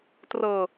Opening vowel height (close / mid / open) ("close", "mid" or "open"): mid